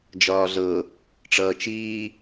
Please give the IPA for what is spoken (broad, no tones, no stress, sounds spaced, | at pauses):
d͡ʒ ɒː ɮ ɤ | ʈ͡ʂ ʌː t͡ʃ iː